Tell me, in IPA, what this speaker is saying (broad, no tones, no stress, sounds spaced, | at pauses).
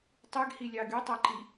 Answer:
tˤ y ɡ h i lʲ ɑ ɡ y tˤ æ ǃ i